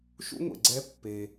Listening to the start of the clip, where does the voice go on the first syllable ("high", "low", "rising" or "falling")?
high